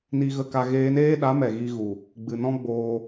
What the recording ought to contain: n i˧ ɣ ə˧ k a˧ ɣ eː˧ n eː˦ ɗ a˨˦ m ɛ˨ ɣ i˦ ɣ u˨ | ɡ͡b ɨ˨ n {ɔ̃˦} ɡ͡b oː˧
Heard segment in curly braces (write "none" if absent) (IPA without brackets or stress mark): ɔ̃˦